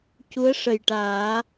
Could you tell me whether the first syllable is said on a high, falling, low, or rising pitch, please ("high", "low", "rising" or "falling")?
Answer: rising